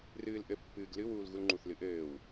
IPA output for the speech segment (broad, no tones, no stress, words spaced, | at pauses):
rɨːlʔɘpːɨːɡ lɨwuːl ɣulŋ͡ǃuθlɨ ʔɘːw